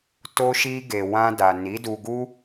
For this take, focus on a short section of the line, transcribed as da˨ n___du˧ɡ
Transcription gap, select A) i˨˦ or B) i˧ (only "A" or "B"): A